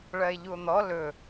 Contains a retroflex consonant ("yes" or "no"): yes